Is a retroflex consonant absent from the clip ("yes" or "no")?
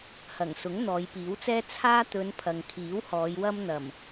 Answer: yes